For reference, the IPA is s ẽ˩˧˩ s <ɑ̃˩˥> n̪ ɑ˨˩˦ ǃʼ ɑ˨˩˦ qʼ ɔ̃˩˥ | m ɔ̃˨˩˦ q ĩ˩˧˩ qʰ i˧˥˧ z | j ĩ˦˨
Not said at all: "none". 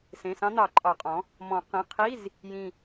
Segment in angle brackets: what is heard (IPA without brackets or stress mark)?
ɑ̃˧˥